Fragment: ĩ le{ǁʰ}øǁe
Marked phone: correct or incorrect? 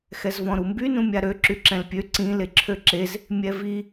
correct